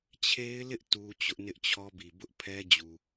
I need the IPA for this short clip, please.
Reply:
t͡ɕʰ e˦ ɪ̯ l ɪ˦ ʔ t u˦ t͡ɕ ʊ˦ ʔ n ɪ˦ ʔ t͡ɕʰ ɔ˦ b i˨ b ʊ˦ ʔ pʰ ɛ˦ d͡ʑ u˨

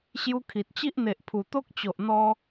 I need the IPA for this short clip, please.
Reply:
ɕ j u˦ kʰ i˨ t̚ t͡ɕ i˦ ʔ n̪ e˨ ʔ pʰ u˨˩ t̪ o˦ k̚ t͡ɕ o˨ ʔ n̪ ɔ˧

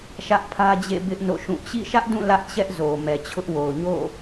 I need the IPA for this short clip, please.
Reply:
ʃ ä˦ ʔ pʰ ä˦ d͡ʑ ḛ˦˨ b ɪ˦ ʔ n o̰˦˨ ʃ ũ˦˨ t͡ɕ ḭ˦˨ ʃ ä˦ ʔ d ũ˦˨ l ä˦ ʔ t͡ɕ ɛ˦ ʔ z o˨ m ɛ˨ t͡ɕʰ ʊ˦ ʔ w o˨ ʊ̯ ɲ o̰˦˨

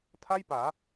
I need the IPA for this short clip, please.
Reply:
tʰ a˥˩ j p aː˩˦

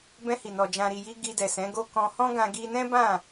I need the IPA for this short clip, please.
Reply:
b ɛ̃˧ h i˨ n ɔ˨ d͡ʒ ã˨ ɾ i˨ j i˧ ɡ i˧ d ɛ˨ s ɛ̃˨˦ ɡ o˦ k ɔ̃˧ h ɔ̃˦ ɡ ã˧ ɡ i˧ n ɛ̃˦ b ã˦˨

